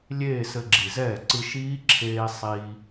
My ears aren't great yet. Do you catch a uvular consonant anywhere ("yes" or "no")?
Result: no